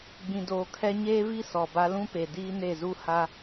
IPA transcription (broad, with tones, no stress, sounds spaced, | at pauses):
ɡ͡b ĩ˨ d oː˨ kʰ ɛ˦ ɲ eː˦ v i˦ s ɔ˨ b a˦ l ũ˦ p e˨ d iː˦ n e˦˨ z u˦ h a˦